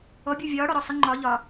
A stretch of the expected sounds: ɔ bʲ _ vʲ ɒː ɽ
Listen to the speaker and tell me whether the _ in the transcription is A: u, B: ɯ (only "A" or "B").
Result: A